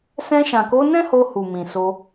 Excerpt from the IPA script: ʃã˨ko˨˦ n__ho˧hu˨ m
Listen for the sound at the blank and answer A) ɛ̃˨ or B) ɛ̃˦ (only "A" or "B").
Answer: B